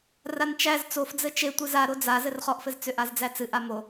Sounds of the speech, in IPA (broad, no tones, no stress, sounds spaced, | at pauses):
r a n t͡ʃ æ z t͡s o f d͡z ɘ t͡ʃ e tʷ ɨ z a ɾ o d͡z a z ɘ r χ ɔ ʔ f ɘ z t͡s ʏ ʔ a z d͡z æ t͡s ɨ ʔ a m o